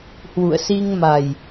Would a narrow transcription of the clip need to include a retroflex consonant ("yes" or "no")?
no